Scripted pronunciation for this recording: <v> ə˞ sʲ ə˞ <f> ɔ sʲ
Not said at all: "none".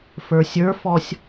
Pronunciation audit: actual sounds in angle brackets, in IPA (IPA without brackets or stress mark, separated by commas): f, f